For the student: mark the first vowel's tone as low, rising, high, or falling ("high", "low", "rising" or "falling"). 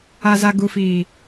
low